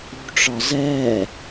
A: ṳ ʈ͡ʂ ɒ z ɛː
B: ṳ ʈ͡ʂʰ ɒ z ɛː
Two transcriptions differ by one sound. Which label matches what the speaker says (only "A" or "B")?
A